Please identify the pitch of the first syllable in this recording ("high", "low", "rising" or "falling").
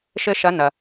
high